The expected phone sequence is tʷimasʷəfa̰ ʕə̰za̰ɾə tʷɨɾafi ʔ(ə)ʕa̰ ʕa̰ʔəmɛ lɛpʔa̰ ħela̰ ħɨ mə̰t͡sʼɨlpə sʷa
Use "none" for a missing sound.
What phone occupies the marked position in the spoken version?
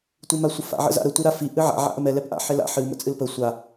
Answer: ɨ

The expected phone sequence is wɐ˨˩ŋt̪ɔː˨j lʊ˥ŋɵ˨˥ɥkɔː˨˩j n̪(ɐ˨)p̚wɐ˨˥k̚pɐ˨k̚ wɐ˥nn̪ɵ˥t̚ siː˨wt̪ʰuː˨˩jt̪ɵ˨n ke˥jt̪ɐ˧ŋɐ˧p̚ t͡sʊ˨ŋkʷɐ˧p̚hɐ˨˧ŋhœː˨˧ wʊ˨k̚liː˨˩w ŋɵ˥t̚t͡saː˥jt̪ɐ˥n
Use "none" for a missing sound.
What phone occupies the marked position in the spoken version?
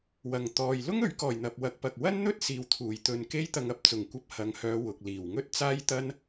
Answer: ɐ˨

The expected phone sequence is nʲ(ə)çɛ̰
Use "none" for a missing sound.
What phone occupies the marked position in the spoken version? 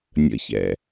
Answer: ə̰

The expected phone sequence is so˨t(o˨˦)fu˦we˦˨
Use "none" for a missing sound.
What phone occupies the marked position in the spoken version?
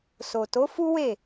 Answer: o˨˦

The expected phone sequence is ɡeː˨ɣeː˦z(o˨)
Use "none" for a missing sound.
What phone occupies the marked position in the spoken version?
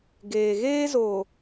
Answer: o˨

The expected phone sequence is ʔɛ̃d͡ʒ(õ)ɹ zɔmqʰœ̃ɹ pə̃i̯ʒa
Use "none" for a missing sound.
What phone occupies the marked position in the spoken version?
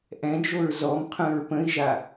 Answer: o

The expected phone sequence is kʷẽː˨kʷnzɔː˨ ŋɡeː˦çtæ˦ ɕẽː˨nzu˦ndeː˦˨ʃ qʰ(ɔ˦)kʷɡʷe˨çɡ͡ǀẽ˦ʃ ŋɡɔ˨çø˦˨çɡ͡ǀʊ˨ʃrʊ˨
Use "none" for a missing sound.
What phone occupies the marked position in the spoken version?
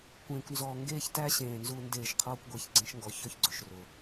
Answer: ɔː˦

